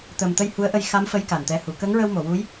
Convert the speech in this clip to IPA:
t̪ ə˨˩ m t̪ ə˧ j h u˧˥ ə̯ ʔ ə˧ j x a˧˥ m f ə˧˥ j k a˨˩ n t̪ ɛ˧˥ h u˨˩˦ k ə˧˥ ŋ ɹ ə˧ w m o˨˩˨ w u˧˥ j

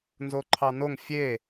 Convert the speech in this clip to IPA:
n z o ǃʰ ɑ n o ŋ fʲ e

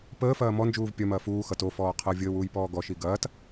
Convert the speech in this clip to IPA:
p əː f ɐː m ɔ n d͡ʒ uː v pʲ ɐ m ɐː f uː x ʌ t o f ɔː qʰ ɤ vʲ əː w uː j p ɔː ɡ ɔ ʃ i ɡ ɐː t

